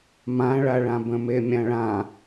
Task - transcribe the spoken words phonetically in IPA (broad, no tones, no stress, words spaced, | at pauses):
mãɭaɭã bə̃memʲãɭã